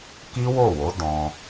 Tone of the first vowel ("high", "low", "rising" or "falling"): high